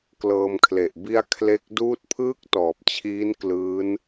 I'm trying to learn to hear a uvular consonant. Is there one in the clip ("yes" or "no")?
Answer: no